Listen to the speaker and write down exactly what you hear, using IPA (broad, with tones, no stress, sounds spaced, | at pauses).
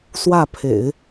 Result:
s w ä˥˩ pʰ ḛ˨˩˦ ɪ̯